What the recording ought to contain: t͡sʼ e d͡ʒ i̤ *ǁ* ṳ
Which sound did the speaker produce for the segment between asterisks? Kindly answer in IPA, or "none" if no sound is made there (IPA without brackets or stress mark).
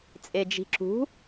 ǁ